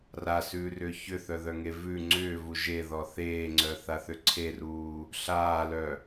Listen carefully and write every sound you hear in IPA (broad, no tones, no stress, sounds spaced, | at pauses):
r a s ʉː r ʏː ç ʏ θ œ ð œ ŋ e v ʉ ŋ͡ǀ ʏː v u ʒ e ð ɔ θ eː ŋ͡ǀ œ θ a θ ʏ ǀʰ e r uː | ɬ aː l œ